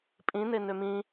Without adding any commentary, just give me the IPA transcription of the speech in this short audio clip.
pʼĩne nømĩ

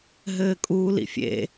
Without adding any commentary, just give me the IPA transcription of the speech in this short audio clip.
ɦɘːkʼuːlḭfʲḛ

